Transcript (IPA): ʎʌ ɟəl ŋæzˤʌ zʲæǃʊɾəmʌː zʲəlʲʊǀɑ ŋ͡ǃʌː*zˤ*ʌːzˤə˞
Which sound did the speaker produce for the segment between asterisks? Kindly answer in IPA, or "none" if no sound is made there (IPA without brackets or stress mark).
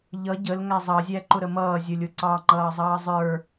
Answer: zˤ